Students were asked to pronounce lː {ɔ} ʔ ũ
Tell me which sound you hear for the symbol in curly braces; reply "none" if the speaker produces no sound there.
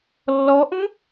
ɔ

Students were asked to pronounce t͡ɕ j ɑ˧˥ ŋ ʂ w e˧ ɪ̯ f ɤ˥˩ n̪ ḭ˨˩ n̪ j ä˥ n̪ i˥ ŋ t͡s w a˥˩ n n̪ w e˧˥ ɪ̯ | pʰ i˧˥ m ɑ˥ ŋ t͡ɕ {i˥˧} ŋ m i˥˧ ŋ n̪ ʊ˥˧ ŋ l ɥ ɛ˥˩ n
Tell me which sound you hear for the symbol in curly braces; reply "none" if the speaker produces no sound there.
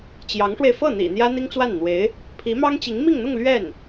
i˧˥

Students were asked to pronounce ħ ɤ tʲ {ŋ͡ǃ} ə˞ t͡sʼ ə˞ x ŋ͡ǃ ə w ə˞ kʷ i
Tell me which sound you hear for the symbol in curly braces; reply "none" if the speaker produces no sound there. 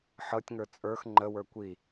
ŋ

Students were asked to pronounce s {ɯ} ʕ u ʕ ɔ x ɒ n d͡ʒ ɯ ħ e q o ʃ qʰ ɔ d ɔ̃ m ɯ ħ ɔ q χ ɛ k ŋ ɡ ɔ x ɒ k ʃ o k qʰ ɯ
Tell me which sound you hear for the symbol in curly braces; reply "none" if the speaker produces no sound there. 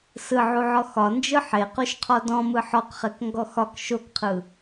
ɯ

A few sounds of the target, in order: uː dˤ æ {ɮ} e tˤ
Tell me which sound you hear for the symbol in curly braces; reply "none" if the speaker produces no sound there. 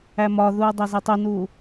z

